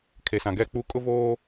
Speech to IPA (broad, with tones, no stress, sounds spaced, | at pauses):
kʰ e˨ s ã˨ ɡ ɛ˦˨ k͡p u˦ kʼ ʊ˦ v oː˦